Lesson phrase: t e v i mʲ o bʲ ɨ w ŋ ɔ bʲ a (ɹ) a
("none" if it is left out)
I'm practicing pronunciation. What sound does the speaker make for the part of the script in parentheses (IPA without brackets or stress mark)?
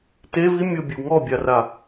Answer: r